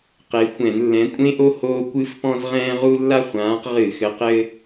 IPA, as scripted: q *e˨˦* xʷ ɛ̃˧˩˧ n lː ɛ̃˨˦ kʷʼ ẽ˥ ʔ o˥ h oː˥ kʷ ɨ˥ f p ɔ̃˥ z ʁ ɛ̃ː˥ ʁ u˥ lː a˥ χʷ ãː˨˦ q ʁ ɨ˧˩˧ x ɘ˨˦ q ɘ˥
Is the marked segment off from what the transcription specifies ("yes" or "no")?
no